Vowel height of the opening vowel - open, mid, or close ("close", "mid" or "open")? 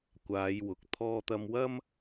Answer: open